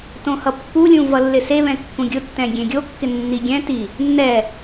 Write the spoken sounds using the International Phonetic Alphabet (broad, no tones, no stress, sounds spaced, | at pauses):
t õ h ʌ pː u lʲ ũ v ʌ lː ɪ s e β ɛ̃ kː ũ ɡʲ ʊ tː ɛ̃ ɡʲ ẽ ɡʲ o kː ɪ nː i ɡʲ ɛ̃ t i | nː ɛ